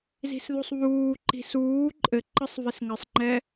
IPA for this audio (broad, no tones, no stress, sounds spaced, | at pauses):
z i̤ s ð u sˤ β uː ǃ i̤ s uː ǃʼ ɘ ǃ ə sˤ v ɪ s ŋ ɘ sˤ ŋ͡ǃ ɛ